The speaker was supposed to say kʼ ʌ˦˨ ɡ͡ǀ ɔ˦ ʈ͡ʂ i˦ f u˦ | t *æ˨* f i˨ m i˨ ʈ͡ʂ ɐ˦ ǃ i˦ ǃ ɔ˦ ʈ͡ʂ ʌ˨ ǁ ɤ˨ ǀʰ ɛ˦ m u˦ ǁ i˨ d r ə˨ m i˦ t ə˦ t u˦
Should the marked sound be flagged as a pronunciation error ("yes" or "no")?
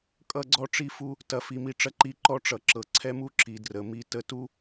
yes